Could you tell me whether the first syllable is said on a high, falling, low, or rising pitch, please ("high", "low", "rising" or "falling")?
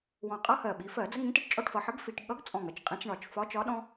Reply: low